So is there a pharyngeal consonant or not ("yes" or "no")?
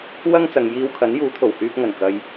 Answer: no